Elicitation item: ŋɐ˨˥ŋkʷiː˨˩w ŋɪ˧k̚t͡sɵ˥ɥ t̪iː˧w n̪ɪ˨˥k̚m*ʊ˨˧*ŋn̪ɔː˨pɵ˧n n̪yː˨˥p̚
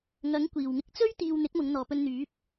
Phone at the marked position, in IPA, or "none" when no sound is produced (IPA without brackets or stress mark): ʊ˨˧